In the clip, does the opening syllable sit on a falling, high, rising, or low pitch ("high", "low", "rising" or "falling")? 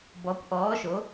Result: rising